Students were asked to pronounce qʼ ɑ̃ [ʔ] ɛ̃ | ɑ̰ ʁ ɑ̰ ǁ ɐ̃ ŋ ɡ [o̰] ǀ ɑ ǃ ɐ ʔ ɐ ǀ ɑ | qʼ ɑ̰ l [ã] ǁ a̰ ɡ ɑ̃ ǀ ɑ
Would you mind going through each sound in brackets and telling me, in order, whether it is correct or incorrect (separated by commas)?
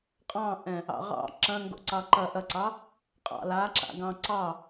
correct, correct, incorrect